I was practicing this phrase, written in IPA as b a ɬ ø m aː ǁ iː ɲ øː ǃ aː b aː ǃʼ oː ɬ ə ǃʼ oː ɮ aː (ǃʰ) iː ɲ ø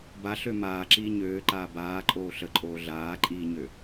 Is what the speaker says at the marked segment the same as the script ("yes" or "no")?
no